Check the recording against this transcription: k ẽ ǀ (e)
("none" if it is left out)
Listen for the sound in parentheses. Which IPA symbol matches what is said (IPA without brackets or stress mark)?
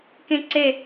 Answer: e